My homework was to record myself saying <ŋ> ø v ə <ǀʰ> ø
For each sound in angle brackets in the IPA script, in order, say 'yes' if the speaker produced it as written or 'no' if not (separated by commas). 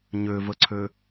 no, yes